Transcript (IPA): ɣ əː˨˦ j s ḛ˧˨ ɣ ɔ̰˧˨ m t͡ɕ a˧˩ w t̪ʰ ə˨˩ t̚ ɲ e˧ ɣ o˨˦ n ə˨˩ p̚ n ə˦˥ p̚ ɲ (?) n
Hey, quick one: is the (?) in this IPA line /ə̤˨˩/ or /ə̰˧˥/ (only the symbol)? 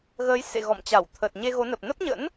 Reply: ə̰˧˥